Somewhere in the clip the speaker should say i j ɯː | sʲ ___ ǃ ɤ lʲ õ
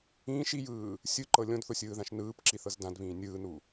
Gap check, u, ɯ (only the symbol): ɯ